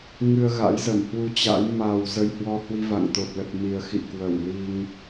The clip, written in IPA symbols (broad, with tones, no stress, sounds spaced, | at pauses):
ŋ ɨ˧ ə̯ ɣ a̰˧˥ j z ə˧˩ m h w u˧ t͡ɕ a̰˧˥ j m a˨˩ w z ə˧ j h w ɔ˧ h w i˧ v a̰˧˨ ŋ t̪ o˨˩ t̚ l ə˨˩ t̚ m i˨˩ ə̯ x ḭ˧˨ k w ə˧˩ w l i˧ ŋ